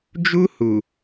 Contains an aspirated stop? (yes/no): no